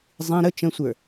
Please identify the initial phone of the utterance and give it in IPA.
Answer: zˤ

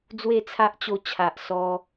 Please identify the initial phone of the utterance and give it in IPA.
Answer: d͡z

